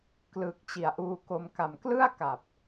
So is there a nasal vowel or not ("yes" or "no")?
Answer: no